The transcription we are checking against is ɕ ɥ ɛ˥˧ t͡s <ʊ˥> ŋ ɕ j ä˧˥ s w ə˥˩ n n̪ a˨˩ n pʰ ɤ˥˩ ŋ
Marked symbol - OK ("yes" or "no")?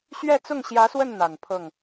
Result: no